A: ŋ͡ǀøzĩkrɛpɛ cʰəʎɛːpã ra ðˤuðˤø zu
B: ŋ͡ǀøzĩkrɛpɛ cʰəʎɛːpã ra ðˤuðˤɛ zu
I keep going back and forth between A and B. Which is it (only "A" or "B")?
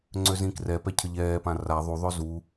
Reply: A